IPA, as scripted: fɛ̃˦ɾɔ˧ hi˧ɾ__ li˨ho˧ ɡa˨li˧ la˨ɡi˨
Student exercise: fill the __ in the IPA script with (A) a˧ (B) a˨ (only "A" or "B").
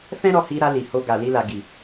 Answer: A